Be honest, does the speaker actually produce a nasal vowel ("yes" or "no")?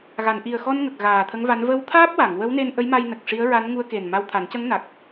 no